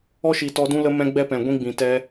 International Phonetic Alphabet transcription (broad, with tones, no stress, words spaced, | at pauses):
ɔ˦ʃi˨tɔ˧dũ˦ lə˧ mɛ̃˧ ɡ͡bɛ˦pɛ̃˨ ɡʷĩ˦ɡ͡bĩ˨ tɛ˧